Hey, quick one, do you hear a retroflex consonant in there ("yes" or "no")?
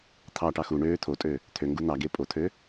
yes